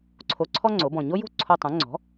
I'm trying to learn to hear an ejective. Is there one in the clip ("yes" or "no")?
no